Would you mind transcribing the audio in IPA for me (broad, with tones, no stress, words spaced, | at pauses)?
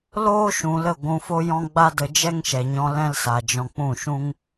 loː˦ʃũ˨ lə˦˨ɡʷũ˧fo˦jɔ̃˦ ɡ͡ba˦də˧ d͡ʒɛ˦ŋʃɛ˨ɲɔ̃˧ lɛ̃˦lsa˨d͡ʒɔ̃˧ k͡pũ˦˨ʃũ˦ŋ